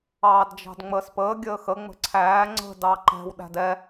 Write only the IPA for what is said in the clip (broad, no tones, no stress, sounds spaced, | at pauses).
ɑː d d͡ʒ ɑ̤ d ŋ͡m əː s p əː ɡʲ əː x ə ŋ͡m ə̤ ǀʰ æː ŋ͡ǀ ə̤ d ɑ ǃ ɛ̤ w ɗ æ̤ d ɛ